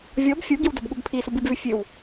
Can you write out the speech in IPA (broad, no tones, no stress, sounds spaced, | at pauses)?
vʲ ɔ b fʲ u ɡ i w d œ b ɠ u b pʰ i s u b i b v ʉ fʲ ʉ w